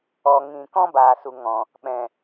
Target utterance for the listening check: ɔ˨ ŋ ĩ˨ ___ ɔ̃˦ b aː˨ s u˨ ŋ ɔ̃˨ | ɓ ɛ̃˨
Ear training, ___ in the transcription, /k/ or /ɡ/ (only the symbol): k